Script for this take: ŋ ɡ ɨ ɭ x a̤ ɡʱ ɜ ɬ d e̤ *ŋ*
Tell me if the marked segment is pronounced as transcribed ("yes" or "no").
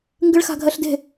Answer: no